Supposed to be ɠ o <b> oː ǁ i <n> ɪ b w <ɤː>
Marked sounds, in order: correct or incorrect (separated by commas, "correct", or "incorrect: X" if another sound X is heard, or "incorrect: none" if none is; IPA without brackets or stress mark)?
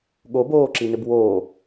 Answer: correct, correct, incorrect: oː